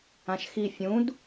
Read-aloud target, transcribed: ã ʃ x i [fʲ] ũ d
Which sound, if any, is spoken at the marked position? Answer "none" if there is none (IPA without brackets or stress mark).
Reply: fʲ